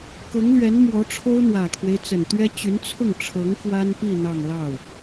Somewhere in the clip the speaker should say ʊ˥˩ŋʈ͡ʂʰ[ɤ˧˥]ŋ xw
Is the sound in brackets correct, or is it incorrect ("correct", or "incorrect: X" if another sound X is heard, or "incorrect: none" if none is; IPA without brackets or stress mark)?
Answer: correct